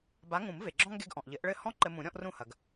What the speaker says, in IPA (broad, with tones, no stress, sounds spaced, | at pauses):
b a˨˥ ŋ ũ˨˩˦ m v e˩ ɡ͡ǁ ɔ̃˥ ŋ ɡ e˧ ɡ ʔ ɔ̃˩ ʔ ʎ ɘ˨˩˦ ʔ ɭ ɘ˥˩ h ɔ̃˥ ǃ ɘ˧ m ũ˨˩˦ ɾʲ ɔ̃˥ ʔ r ũ˥˩ h ɐ˩ ɡ